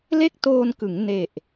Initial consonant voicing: voiced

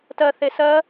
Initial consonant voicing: voiceless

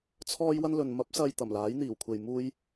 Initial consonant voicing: voiceless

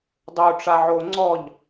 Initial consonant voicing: voiced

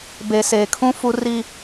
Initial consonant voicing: voiced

